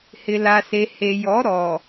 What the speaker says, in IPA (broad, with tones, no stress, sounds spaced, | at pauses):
h ɪ˨ l a˨ s e˨ h e˨ j ɔ˨˦ ɾ ɔ˨